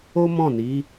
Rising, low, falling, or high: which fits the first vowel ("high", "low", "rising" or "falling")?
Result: high